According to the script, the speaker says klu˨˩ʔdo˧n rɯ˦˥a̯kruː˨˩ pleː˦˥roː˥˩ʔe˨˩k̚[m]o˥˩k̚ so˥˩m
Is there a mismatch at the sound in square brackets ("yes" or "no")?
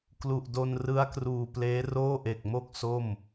no